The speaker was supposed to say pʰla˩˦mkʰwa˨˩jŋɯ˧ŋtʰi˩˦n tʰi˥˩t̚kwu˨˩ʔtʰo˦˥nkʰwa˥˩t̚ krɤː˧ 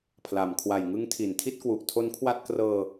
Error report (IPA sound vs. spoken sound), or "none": ɯ˧ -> ɯ˦˥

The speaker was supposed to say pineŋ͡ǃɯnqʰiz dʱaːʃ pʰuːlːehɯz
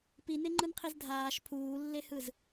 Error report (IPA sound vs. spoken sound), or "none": none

